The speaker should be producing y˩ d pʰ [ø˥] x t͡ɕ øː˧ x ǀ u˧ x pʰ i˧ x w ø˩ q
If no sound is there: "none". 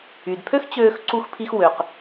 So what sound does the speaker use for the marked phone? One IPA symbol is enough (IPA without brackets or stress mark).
ø˥